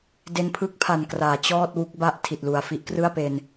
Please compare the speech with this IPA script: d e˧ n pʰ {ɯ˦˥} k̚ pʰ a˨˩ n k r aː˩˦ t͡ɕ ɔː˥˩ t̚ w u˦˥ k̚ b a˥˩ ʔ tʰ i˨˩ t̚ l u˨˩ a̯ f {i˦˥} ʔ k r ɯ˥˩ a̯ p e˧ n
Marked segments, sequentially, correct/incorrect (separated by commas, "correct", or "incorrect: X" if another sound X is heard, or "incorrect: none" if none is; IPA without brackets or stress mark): correct, correct